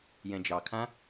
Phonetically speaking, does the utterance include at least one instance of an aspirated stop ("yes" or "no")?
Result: yes